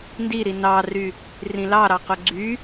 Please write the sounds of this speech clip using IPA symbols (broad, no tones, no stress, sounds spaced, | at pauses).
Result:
n d i ɾ i n ɑ r y | r ĩ l ɑ ɾ ɑ q o ɡ͡ǀ y